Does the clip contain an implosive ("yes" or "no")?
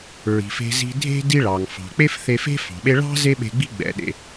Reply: yes